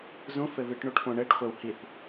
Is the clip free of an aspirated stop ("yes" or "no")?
yes